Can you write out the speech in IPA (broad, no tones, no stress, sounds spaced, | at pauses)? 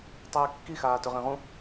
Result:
tˤ ʉː kː i x aː t ɵ ʁ ẽ ʁ ũ